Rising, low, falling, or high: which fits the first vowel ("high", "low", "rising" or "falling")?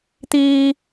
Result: high